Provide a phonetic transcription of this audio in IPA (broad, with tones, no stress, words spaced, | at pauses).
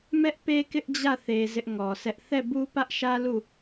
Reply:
mɛ˦ʔpe˦ kɪ˦ʔ d͡ʑä˦˨θe˨ zɪ˦ʔŋɔ˨sʰɛ˦ʔ θɛ˦˨bu˦pä˦ʔʃä˦ lu˦˨